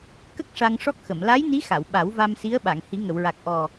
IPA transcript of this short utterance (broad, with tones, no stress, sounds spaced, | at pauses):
k ə˦˥ k̚ ʂ a˧ ŋ ʂ ɔ˦˥ k̚ x ə˨˩˨ m l a˧˥ j n i˧˥ x a˨˩˨ w ɓ a˨˩˦ w v a˧ m s i˧˥ ə̯ ɓ a˨˩˨ ŋ h i˨˩˦ ŋ ə˨˩˨ w ɹ a˨˩ k̚ ʔ ɔ˨˩